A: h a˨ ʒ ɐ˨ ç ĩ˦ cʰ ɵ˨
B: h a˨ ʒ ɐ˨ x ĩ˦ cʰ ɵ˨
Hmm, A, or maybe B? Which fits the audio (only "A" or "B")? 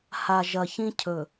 A